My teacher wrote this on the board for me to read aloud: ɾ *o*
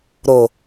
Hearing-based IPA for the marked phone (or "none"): o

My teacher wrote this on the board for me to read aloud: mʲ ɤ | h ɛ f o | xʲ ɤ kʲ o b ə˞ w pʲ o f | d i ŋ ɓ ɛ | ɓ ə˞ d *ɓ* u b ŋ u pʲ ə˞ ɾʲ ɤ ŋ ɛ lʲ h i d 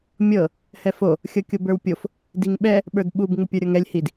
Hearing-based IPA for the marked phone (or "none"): ɓ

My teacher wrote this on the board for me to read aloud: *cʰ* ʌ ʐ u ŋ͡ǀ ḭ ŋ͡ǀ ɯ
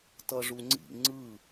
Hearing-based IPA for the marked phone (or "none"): t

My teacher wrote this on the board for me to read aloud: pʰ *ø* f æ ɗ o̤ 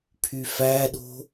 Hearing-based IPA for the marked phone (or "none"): y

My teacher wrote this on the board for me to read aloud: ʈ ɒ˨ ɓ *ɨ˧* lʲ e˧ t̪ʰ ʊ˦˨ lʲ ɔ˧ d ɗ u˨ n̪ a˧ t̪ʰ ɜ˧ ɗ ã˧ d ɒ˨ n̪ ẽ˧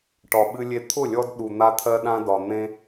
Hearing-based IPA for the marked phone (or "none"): ɨ˧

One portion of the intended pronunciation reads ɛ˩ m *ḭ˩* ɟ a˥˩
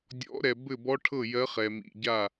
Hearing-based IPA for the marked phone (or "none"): ḭ˩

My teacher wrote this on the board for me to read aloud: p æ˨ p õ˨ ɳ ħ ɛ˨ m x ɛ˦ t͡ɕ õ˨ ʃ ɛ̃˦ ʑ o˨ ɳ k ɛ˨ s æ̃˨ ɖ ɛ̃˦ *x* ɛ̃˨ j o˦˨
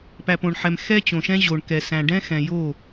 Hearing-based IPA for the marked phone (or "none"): x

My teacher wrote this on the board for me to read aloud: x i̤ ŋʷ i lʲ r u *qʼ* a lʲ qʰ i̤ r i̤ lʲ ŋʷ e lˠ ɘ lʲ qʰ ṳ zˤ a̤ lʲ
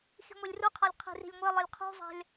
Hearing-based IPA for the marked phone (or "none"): qʰ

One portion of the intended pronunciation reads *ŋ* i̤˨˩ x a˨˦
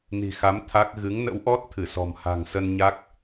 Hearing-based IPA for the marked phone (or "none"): n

